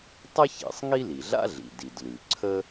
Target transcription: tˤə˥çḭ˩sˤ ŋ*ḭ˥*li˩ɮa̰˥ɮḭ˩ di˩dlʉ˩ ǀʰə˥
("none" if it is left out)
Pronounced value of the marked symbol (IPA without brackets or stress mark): i˥